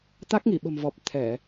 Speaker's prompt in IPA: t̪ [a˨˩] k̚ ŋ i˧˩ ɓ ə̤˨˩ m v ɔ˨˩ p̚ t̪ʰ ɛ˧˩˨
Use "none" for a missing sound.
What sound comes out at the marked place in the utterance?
a˦˥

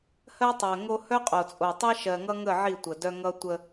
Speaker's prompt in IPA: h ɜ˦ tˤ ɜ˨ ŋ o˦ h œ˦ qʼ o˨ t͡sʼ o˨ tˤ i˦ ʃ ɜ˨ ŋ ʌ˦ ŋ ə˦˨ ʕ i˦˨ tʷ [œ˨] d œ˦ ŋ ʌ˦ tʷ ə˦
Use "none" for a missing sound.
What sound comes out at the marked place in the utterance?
ə˨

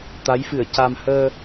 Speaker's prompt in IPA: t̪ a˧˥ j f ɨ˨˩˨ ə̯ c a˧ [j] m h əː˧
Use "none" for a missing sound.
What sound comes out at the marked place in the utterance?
none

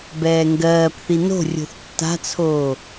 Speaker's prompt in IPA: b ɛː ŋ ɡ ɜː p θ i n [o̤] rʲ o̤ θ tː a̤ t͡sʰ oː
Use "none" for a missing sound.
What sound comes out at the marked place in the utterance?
o̤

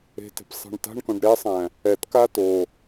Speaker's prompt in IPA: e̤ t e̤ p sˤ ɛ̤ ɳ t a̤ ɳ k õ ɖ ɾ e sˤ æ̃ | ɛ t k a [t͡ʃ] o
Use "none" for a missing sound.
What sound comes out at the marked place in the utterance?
t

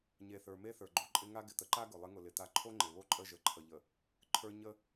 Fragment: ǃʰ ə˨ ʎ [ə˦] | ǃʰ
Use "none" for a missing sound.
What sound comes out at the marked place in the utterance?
ə˨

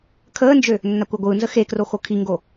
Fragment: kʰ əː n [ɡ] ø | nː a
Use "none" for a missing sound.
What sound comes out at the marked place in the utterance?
d͡ʒ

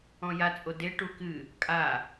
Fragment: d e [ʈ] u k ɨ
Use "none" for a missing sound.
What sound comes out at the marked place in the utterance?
ʈ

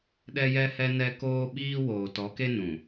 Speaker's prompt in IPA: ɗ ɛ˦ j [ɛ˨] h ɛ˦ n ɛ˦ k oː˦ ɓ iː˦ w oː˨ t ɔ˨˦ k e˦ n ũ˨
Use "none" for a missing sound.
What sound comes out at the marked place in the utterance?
ɛ˦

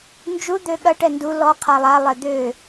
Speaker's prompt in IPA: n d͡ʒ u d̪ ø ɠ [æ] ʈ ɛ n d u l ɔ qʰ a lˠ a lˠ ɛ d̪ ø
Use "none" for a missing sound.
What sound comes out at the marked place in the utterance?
ɐ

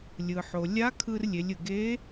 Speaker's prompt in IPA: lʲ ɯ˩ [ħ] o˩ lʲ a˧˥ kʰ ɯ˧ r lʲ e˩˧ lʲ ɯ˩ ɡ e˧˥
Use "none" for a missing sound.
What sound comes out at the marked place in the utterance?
ħ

